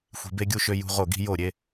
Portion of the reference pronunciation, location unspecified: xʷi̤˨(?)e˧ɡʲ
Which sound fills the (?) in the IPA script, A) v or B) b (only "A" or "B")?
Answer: B